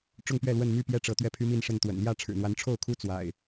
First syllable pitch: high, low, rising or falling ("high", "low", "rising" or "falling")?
falling